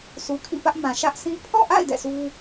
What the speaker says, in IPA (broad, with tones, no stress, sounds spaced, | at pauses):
s u˨ kʰ ḭ˦˨ p ä˦ ʔ m ã˨ ʃ ä˦ ʔ s ĩ˦ pʰ ɔ̰˦˨ ʔ a̰˦˨ ɪ̯ d ɛ̰˦˨ sʰ u˦